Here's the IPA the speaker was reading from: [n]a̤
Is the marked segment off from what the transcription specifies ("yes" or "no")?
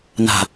no